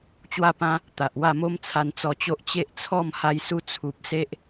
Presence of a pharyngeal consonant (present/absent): absent